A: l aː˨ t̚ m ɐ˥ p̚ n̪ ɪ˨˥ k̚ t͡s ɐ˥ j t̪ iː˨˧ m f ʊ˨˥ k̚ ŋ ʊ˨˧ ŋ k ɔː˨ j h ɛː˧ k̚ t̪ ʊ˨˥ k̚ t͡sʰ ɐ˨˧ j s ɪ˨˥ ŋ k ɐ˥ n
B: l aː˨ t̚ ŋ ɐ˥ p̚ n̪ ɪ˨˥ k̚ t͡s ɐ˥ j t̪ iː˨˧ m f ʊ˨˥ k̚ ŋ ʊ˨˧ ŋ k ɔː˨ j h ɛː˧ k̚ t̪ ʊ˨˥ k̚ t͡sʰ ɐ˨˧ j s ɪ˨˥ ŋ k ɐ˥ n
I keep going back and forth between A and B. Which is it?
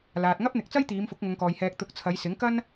B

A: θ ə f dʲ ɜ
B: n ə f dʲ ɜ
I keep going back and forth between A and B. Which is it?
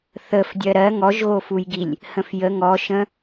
A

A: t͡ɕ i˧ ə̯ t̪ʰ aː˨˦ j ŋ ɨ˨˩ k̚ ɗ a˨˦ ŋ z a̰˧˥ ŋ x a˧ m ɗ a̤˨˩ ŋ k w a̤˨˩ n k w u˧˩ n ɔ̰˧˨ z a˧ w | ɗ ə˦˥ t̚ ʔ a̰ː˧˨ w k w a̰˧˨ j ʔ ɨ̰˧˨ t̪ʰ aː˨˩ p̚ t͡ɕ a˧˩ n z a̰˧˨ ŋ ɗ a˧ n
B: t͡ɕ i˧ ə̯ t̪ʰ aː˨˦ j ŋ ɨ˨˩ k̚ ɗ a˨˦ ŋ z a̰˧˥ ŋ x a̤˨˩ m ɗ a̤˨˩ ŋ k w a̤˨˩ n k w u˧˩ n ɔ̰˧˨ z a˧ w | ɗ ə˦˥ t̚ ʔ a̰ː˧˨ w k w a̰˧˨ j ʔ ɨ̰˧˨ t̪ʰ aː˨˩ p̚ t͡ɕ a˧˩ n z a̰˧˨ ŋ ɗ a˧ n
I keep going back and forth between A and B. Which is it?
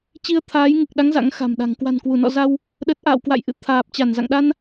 B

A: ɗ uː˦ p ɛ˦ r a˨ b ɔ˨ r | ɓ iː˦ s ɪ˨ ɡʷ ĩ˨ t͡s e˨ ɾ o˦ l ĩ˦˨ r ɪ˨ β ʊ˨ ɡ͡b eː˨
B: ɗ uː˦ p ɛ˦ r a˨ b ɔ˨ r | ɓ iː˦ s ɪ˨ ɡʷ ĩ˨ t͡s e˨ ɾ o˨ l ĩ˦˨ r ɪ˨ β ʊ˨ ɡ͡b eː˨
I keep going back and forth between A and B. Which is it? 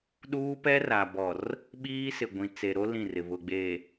A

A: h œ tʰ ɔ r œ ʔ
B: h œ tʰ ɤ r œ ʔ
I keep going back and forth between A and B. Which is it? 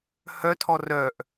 A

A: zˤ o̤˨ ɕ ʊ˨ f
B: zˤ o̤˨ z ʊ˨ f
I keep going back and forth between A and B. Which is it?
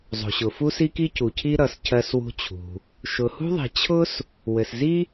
A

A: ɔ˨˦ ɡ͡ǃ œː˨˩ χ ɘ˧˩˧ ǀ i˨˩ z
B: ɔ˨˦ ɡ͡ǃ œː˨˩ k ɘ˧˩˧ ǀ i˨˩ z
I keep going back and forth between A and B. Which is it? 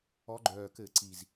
B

